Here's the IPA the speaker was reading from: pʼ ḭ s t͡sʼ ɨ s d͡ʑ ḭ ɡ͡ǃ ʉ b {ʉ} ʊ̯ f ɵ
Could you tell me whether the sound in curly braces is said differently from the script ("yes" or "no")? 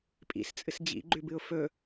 yes